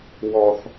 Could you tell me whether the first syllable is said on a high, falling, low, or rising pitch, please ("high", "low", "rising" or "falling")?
high